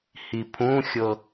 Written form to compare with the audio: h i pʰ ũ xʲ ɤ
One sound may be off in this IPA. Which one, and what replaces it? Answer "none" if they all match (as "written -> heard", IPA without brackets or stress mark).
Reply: none